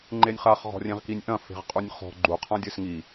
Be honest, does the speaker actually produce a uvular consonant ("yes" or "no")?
yes